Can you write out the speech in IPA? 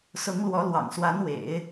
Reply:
sʊ˧˥ŋ lwɔ˧˥lwɑ̰˨˩ŋ swa˧˥nwḛ˨˩˦ɪ̯

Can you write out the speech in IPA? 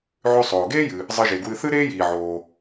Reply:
ʕʉ˧ sˤoː˩ɡeː˥jɨ˩ | zˤɨ˧ʒe˩ɡwɨ˧ θɨ˥ɾeː˥jiː˩ʕoː˩

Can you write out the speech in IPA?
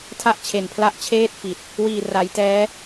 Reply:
tʰa˥˩ʔt͡ɕʰe˨˩npʰla˥˩ʔ t͡ɕʰeː˥˩t̚fi˨˩t̚ | wiː˨˩ra˩˦jtɛː˦˥

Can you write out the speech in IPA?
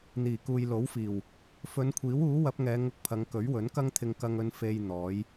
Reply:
n̪iː˨˩kuː˨jlo˨˥wfiː˨˩w | fɵ˨˧nkʷʰiː˨˥wuː˨˥ wɐ˨˥p̚ŋɛː˨˧ ŋʊ˧k̚pʰɐ˨˧ŋ kɵ˨˥ɥwɵ˨˥nkɐ˥ŋt̪ʰɪ˧ŋ kɐ˧ŋɵ˧n fe˧j n̪ɔː˨˥j

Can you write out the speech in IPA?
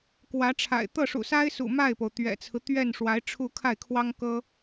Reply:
kwä˧˥ʈ͡ʂʰa̰˨˩ɪ̯ t̪ɤ˥˩ʂṵ˨˩sa˥ɪ̯sṵ˨˩ ma˥˩ɪ̯po˩ʊ̯ t̪ɥɛ̰˨˩t͡sʰɹ̩˦ t̪ɥɛ˥˩n ʂwa˧˥ɪ̯ʈ͡ʂʰu˥˧ kʰa˥˩ɪ̯kʰwɑ˥ŋ kɤ˥

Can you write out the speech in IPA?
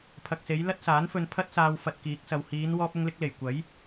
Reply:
pʰɐ˨k̚se˨˧j lɐ˥t̚saː˨˥nfɵ˧n pʰɐ˥t̚saː˧w fɐ˧t̚kiː˨˥k̚sɐ˨w hiː˨˧n wɔː˧p̚ʊ˧ŋlɪ˧k̚le˨˩j kʷɐ˨˥j

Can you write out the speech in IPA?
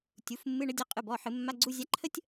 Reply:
tʲu˩˥fmːɨ˧˥˧ɳə˧˥ dʲə˧˥˧ qʼɨ˩˧˩bɔ˩˧˩ ħɨ˧˩˧mːa˧˥˧ɡ͡ǀu˧˥˧ zʲa˧˥ǃʰə˥tʲ

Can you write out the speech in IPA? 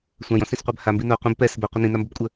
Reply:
sʷãjɔ̃sĩsqʷab hambi no qʷĩb pɛs bɛqʷɪ nĩnambobkʷʼə

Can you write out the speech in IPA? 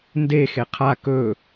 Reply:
nde xeqʰa kɵ

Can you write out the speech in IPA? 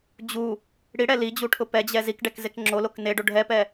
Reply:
d͡ʑu | ɽiɽɛ lid͡ʑuʈʰʊ pɛd͡ʑɛ zikɖɛkzek ŋ͡ǁolok neɖo ɖʱɛpɛ

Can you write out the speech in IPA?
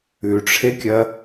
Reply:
ʉʈ͡ʂʰekʲɐ

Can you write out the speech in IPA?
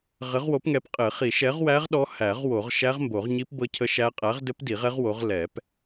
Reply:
ʁɘ˨˥ʁwo˨˥pŋɛ˨˥pqʼɘ˨˩˦ χi˨˩˦ʃɛ˨˥ʁwæ˦˥ʁ ɗɔ˦˥ hæ˨˩˦ʁ wo˨˩˦ʁ ʃæ˦˥ʁmbo˨˩˦ʁɲi˦˥p bɤ˦˥cʰə˦˥ʃæ˦˥ qʼæ˨˥ʁdɘ˦˥p di˨˩˦ʁɛ˦˥ʁ wo˨˥ʁ lɛ˨˩˦p

